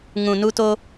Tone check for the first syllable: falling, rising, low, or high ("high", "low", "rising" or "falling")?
low